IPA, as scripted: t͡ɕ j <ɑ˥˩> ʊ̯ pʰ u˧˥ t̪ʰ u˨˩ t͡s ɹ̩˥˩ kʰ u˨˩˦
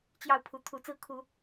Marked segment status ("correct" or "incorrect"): correct